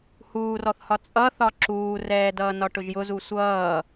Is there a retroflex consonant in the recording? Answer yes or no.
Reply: yes